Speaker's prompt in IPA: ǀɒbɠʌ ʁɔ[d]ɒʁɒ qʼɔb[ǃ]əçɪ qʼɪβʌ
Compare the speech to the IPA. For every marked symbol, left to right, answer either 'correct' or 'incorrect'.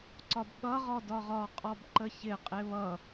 correct, correct

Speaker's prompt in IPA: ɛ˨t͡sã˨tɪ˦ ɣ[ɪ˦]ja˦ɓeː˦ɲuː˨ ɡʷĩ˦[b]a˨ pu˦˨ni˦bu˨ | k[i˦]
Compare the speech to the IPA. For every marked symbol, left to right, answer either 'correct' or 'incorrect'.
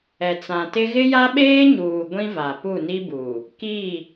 correct, incorrect: v, incorrect: i˦˨

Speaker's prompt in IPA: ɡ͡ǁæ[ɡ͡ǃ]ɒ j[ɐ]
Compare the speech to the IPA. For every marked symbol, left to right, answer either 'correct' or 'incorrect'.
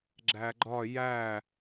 correct, incorrect: æ

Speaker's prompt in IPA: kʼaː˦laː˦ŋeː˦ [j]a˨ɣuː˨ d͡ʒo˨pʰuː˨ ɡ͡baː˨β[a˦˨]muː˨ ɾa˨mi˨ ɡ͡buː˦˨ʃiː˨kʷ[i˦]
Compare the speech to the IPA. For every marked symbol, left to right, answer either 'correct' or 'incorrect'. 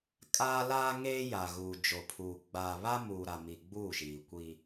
correct, incorrect: a˦, correct

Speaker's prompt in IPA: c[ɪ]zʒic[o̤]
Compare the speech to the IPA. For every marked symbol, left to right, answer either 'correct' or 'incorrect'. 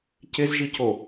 correct, incorrect: o

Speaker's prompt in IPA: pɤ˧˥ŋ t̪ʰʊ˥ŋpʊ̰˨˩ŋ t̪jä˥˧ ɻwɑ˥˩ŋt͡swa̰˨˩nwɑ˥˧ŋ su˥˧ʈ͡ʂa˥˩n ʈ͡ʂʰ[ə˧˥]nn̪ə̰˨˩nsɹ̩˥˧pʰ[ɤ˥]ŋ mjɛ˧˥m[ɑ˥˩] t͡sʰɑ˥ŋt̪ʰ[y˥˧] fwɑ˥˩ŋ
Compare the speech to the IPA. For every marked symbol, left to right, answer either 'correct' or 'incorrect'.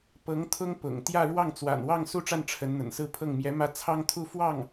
correct, incorrect: ɤ˥˩, incorrect: ä˥˩, incorrect: u˥˧

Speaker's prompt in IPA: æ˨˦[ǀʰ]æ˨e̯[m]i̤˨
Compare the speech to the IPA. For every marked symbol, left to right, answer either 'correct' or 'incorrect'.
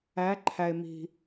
incorrect: ǃʰ, correct

